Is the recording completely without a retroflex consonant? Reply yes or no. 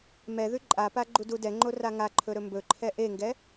yes